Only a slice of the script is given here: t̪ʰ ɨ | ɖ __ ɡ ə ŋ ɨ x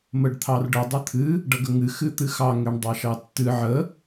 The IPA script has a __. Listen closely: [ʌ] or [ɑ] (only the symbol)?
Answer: ʌ